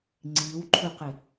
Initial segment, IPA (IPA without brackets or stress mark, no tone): ŋ͡ǀ